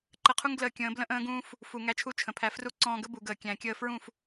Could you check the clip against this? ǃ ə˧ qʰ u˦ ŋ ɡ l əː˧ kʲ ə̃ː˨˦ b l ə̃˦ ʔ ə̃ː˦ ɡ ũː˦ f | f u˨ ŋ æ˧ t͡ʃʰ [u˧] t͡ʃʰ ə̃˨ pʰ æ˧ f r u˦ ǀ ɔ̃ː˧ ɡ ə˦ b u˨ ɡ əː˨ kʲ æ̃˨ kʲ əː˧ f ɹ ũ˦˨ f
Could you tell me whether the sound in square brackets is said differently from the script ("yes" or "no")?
no